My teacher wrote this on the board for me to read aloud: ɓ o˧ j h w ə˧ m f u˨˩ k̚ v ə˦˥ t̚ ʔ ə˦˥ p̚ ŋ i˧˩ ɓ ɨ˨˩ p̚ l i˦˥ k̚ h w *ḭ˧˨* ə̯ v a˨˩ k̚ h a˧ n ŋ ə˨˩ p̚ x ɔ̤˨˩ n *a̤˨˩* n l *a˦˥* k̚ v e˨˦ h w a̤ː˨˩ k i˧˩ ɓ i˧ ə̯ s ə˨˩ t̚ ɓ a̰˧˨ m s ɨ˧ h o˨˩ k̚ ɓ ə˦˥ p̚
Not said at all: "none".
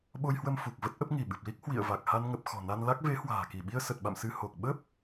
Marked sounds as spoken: ḭ˧˨, a˧, a˦˥

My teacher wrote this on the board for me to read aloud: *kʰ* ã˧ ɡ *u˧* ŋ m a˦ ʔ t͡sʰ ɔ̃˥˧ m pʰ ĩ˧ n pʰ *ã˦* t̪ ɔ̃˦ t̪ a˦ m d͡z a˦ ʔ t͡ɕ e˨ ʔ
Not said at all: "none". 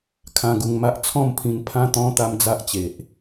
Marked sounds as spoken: kʰ, u˧, ã˦

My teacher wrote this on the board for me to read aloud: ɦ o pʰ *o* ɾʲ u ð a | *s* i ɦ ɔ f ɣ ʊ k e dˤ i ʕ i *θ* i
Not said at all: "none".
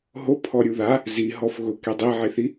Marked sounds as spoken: ɔ, z, θ

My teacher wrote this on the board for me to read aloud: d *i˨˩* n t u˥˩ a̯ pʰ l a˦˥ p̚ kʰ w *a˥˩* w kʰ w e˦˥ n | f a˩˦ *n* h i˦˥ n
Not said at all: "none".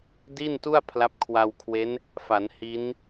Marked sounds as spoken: i˥˩, a˧, n

